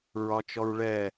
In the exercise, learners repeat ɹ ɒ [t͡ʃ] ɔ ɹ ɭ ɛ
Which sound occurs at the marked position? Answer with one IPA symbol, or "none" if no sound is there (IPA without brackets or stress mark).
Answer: t͡ʃ